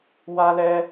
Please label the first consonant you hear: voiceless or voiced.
voiced